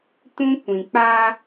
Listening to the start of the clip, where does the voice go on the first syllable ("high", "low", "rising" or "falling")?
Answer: high